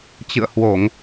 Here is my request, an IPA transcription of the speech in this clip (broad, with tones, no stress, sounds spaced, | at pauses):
t͡ɕ ɨ̰˧˨ ə̯ h w o˧˩˨ ŋ